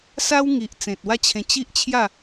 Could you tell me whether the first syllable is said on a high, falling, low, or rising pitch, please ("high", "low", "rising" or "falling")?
high